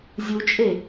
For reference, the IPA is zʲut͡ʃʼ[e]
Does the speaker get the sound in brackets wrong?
no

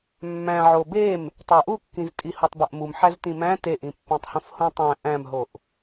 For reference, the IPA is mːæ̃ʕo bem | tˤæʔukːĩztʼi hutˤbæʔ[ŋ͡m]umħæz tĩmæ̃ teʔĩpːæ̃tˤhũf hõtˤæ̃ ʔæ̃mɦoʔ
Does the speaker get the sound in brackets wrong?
yes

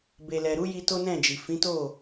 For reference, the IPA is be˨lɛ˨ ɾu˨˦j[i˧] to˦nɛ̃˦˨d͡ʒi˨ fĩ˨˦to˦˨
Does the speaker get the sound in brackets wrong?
no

